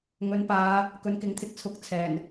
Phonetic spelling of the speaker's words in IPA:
ŋ ɵ˨˥ n p aː˨˧ | k ɵ˨˥ n k ɪ˨˥ ŋ t̪ʰ ɪ˧ k̚ t͡sʰ ʊ˨˥ k̚ t͡sʰ ɛː˨˩ n

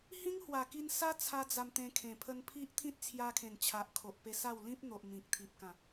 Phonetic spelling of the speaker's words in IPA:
h ĩ˦ ŋ h w a˨˩ k i˧ n s a˦ t͡sʰ a˦ d͡z a˧ m t̪ ẽ˧ kʰ ẽ˨˩ pʰ ə˧ n pʰ i˦ ʔ t̪ʰ ĩ˦ t̚ t͡sʰ j a˧ kʰ ẽ˨˩ n t͡ɕʰ a˨ ʔ kʰ o˨ ʔ p e˧ s a˥˧ w l ĩ˦ p̚ n̪ o˨ ʔ m ĩ˨ k̚ t̪ʰ i˨ p̚ k ã˨˩

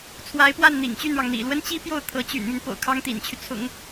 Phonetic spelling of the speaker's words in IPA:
t͡sʰ w a˧˥ ɪ̯ p w a˥˩ n n̪ ḭ˨˩ ŋ t͡ɕ y˥˩ n ɻ ɑ˩ ŋ n̪ ḭ˨˩ l w ə˥ n t͡ɕ i˥ p j o˥˩ ʊ̯ t̪ʰ ɤ˧˥ t͡ɕ y̰˨˩ n m y˦ n p o̰˨˩ ʊ̯ kʰ ɑ˥ ŋ t̪ ḭ˨˩ n t͡ɕʰ y˦ t͡sʰ ʊ̰˨˩˦ ŋ

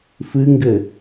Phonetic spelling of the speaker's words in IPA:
f ɨ ŋ ɡ ɘ

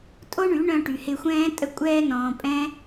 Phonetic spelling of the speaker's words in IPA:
tʼ o˦ ɳ y˨˦ ɳ œ̃˧ ʈ y˨ h ɪ˧ xʷ ɛ̃ː˦ tʼ ə˧ kʷʼ ɛː˧ n ɔ̃ː˨ pʼ ɛ̃˦

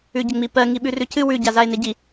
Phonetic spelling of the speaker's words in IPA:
ʉ ɟ ə ŋ͡m i p ɜ ŋ i ɓ ʉ r ʉ cʰ ɨ w ʉ ɟ a z a e̯ n e ɟ i

